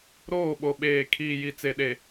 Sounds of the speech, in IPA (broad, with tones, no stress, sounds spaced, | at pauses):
ɾ oː˦˨ ɓ o˨ ɓ eː˨ kʰ iː˨ j i˨ t͡s e˨ ɗ e˨